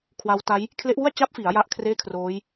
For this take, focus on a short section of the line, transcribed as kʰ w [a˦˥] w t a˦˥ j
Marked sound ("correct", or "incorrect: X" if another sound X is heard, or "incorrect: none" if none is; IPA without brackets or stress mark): correct